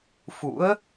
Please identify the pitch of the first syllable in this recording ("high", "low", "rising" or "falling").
rising